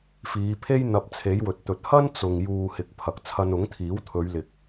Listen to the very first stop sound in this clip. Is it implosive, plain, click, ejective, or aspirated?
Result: aspirated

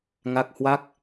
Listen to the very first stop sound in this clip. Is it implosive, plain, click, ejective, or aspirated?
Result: plain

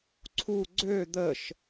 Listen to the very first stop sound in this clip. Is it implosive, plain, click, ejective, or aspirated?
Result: click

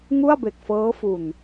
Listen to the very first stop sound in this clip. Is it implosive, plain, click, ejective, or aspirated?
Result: plain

